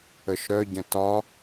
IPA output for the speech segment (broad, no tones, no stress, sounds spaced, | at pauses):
ə ʃ ɾ œ ɟ ə̃ t ɒ